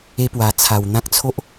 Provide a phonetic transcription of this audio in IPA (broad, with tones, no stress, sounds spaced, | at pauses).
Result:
e˦ p w a˨˩ t͡sʰ a˨˩ w n̪ ã˦ k̚ t͡sʰ o˦ ʔ